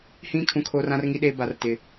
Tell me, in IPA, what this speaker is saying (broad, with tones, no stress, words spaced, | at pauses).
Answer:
hĩ˦ kʰũ˨kʰoː˨r ã˦rŋi˦ɗeː˦ ba˨rtɪ˨